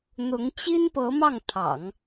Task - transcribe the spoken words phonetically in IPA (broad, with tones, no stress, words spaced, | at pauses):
n̪ʊ˧˥ŋt͡ɕi˥npɤ˧˥ mɑ˥˩ŋ t̪ʰɑ̰˨˩˦ŋ